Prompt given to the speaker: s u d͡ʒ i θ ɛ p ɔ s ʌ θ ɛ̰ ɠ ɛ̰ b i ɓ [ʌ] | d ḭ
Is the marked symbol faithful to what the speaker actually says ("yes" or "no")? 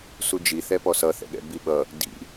yes